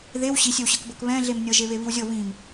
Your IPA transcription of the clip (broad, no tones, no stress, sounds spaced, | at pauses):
ð e w ɕ i sʲ ɘ w ɕ ɤ k b ɤ k β ɛ̃ ɮ e m nʲ ɤ ʒ e β e β i w zʲ ɤ β ĩ m